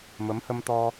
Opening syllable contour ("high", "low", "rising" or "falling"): rising